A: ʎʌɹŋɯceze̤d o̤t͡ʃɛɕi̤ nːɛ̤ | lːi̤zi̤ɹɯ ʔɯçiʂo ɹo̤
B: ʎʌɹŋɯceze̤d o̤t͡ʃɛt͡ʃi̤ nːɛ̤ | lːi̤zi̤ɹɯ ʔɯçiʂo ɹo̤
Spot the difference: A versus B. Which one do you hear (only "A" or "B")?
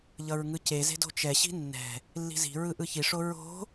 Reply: A